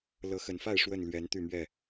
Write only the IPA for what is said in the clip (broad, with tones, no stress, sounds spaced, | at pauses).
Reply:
l ɤ˨˦ x ə˨˩ n f a˥˨ ɪ̯ ʂ w ə˥˨ n l ɥ ɛ˨˦ n t̪ y˥˨ m ɥ ɛ˥˨